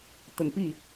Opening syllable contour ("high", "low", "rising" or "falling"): low